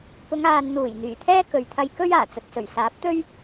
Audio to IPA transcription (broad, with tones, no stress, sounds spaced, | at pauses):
p ʊ˨˧ ŋ aː˨ n n̪ uː˨˩ j n̪ yː˨˩ t̪ʰ ɛː˥ k ɵ˨ ɥ t̪ʰ ɐ˧ j k ɵ˥ ɥ aː˨˩ t͡s ɐ˨ t̚ s ɵ˨˩ ɥ s aː˨˥ p̚ t̪ ɵ˥ ɥ